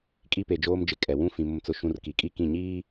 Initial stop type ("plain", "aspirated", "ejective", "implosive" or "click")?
ejective